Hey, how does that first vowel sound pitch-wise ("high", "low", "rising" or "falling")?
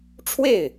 falling